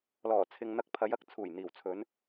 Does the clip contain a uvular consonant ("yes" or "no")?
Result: no